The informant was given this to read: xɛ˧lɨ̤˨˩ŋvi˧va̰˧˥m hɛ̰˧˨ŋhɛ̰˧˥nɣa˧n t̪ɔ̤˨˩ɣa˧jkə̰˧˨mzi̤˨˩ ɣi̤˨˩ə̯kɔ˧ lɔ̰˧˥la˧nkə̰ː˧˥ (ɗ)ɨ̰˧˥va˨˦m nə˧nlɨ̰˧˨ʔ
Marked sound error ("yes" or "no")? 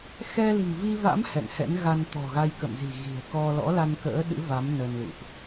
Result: no